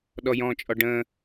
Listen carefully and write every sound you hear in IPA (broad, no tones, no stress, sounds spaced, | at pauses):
ɗ ɔ j ɔ̃ t͡ʃʼ ɔ ɖ ə̃